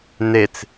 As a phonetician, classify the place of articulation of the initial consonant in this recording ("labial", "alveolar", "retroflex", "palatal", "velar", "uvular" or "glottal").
alveolar